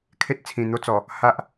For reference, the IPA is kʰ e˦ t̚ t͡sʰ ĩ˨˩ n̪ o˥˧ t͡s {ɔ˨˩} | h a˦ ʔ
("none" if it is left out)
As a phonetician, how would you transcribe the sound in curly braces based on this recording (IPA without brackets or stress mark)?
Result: ɔ˨˩